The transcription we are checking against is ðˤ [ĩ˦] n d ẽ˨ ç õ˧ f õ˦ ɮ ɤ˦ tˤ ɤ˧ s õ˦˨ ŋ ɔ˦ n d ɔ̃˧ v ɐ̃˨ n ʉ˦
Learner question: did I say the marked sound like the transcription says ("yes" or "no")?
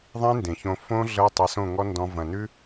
yes